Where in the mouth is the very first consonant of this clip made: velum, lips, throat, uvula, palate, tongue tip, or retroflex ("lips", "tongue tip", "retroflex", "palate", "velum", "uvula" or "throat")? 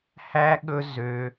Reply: throat